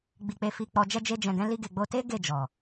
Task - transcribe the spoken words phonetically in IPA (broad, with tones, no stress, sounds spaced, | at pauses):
ɡ͡b i˧ k͡p e˧ f i˧ k͡p ɔ˧ d͡ʒ ɛ˧ d͡ʒ e˧ d͡ʒ ɛ̃˨ ɡ ɛ̃˧ l i˧ ɡ e˨ ɡ͡b o˧ t e˦ ɡ e˦˨ d͡ʒ ɔ˨